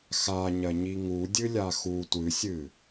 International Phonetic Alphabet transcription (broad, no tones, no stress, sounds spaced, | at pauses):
x a ɲ ɐ ɲ i ŋ u dʲ ɨ lʲ a x u tʷ ɨ sʲ ɨ